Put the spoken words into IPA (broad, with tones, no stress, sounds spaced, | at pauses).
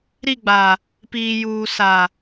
ɾ i˦˨ ɡ͡b a˨ | p iː˨ j uː˨ s a˨